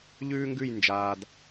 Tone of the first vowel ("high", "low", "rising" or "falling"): high